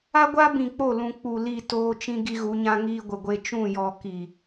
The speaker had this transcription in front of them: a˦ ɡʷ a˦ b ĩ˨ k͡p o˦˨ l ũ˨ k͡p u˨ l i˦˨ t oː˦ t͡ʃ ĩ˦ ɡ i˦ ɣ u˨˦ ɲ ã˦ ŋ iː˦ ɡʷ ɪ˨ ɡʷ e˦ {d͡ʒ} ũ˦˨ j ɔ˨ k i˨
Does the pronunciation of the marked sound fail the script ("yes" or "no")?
yes